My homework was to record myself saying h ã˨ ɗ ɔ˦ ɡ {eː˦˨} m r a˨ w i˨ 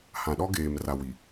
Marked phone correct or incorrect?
incorrect